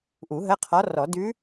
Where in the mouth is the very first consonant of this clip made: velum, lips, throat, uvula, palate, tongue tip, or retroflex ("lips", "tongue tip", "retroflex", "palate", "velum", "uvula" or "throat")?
throat